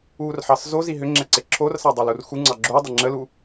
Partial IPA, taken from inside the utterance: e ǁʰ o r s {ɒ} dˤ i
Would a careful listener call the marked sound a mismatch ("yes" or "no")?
yes